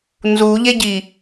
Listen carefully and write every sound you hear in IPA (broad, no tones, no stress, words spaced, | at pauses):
nzuʎeɟi